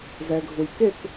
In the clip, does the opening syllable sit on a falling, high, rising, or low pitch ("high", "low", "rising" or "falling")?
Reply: low